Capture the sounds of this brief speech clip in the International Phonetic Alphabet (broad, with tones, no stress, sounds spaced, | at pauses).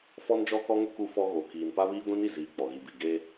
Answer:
f ɔ˦ n d͡ʒ ɔ˦ k ɔ˦ ŋ ʊ˦ k u˦ f ɔ˦ ɣ o˨ k iː˨ n p a˦ β iː˦ ɡʷ ĩ˦ n i˨ z iː˨ k͡p ɔ˨ ɣ i˨ b i˨ ɡ e˦